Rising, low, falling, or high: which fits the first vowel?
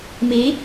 rising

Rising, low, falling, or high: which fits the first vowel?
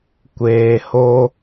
low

